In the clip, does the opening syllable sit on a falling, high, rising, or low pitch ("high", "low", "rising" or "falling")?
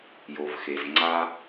low